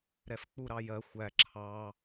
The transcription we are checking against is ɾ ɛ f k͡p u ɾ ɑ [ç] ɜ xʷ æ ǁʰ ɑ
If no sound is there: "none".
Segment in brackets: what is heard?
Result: j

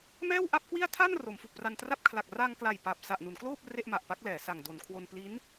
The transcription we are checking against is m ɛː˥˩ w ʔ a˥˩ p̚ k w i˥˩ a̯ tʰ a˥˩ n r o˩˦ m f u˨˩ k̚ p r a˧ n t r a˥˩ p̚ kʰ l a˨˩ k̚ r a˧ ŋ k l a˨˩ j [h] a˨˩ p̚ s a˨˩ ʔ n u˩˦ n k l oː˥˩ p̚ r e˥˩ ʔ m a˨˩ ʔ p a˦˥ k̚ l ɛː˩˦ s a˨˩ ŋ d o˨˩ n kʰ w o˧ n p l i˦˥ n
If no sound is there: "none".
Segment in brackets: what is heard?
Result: p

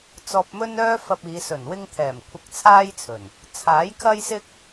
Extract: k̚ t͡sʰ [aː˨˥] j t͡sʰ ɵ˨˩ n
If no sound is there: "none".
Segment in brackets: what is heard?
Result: aː˥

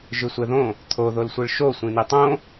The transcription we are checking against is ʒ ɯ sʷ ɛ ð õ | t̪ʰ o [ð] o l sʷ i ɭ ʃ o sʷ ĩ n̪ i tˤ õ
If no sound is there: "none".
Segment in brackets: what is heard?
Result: ð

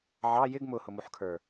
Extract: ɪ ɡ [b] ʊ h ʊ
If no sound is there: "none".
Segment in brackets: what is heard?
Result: m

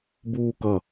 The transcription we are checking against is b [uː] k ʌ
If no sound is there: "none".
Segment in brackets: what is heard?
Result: uː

